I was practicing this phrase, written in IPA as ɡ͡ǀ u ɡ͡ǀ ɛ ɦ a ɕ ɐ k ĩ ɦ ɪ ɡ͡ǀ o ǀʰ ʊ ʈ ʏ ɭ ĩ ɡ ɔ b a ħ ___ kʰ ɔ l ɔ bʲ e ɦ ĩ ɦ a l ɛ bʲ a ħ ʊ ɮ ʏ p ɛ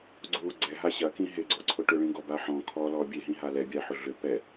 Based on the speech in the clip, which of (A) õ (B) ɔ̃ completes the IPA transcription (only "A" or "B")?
B